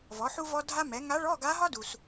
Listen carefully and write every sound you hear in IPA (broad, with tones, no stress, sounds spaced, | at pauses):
v ɔ˩˥ ħ u˥ v ɔ˥ dʱ a˥ m ɛ˩˥ ŋ a˧˥ ɭ ɔ˧˥˧ ɡ a˧˥ ɦ ɒ˥ d u˩ s